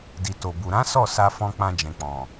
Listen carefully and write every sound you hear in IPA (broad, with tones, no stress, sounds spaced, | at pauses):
d i˨ t o˨ b u˨ ɾ ã˨˦ s ɔ˦˨ s a˧ f ɔ̃˧ k͡p ã˧ d͡ʒ ɛ̃˨ k͡p ɔ̃˨